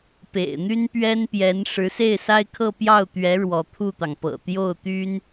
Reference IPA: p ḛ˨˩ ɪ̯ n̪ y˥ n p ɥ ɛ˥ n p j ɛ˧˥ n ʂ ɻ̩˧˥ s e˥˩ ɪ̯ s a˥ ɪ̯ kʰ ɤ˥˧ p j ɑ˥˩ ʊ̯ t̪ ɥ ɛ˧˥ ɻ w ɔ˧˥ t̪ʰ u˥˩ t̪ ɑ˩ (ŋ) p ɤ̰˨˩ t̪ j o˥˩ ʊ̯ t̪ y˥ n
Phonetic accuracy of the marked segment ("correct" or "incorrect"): correct